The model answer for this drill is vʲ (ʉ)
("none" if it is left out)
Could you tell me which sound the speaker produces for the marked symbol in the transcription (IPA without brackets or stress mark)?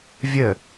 ə